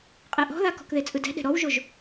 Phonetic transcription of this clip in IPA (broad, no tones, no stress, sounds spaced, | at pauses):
qʼ ɛ ʔ ɔ̤ ð a k ɔ̤ k ð e t͡sʼ ɯ d ɛ̤ ɗ ɛ̤ ɾ ɔ w ʒ o ʒ